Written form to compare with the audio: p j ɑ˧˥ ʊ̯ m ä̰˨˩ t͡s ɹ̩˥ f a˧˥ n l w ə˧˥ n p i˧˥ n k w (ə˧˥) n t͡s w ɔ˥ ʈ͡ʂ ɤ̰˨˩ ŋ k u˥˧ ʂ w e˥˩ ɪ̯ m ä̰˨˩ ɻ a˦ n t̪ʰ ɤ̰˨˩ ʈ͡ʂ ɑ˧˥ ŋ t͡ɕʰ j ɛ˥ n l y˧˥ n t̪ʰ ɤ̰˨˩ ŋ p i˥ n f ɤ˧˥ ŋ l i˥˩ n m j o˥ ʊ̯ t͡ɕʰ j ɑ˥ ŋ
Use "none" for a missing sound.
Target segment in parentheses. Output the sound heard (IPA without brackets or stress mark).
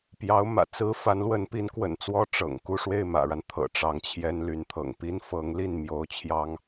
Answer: ə̰˨˩